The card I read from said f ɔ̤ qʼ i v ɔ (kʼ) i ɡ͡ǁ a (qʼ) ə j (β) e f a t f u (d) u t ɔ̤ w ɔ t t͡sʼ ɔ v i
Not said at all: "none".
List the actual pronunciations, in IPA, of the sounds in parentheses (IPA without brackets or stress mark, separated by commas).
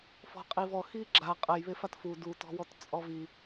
x, qʼ, β, d